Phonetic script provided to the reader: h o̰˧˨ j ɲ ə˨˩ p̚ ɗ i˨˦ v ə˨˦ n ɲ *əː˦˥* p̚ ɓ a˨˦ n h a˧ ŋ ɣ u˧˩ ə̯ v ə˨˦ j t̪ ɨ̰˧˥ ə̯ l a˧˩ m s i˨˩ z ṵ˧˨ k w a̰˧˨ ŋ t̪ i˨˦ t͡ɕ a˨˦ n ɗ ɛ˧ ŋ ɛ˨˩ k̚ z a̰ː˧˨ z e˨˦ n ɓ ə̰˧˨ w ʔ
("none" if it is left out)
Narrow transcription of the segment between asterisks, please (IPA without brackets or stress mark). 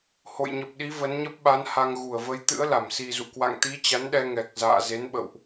ə˦˥